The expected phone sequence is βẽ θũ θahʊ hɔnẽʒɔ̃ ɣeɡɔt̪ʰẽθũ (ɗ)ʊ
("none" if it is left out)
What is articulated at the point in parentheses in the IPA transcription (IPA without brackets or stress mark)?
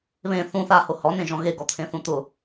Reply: t̪